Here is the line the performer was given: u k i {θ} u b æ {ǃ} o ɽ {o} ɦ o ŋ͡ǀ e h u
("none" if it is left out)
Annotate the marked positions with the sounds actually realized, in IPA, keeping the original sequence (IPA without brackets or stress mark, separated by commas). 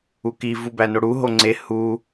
v, n, u